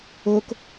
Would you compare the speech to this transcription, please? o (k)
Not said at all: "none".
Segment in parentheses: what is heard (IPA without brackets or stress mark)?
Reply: k